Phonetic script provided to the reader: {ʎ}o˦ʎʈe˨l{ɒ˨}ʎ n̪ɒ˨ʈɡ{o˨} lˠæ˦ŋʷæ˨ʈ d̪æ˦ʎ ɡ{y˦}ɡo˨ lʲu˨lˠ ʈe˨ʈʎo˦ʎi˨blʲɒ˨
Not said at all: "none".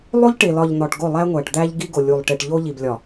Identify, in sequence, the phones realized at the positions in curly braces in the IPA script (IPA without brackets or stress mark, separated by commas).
lˠ, ɒ˨, o˦˨, i˦